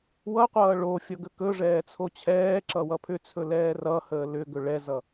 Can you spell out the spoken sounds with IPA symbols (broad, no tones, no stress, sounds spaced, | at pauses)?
w ʌ qʷ ʌː ɭ o fʲ ʌ ɡ ə k ɵ ʐ ɛː t͡sʰ o t͡ɕʰ ɛː ǁ ʌ w ʌ pʰ ʏ t͡sʰ ɵ l ɛː r ʌ h əː l ʏ ɡ ɵ ɭ ɛ z ʌ